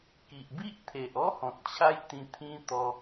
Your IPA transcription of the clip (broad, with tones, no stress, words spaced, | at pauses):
ki˨ʔbi˦ʔt̪ʰe˨ʔɔ˦ hɔ̃˨t̚t͡ɕʰa˦j t̪ĩ˧t̪ʰĩ˦t̪ɔ˧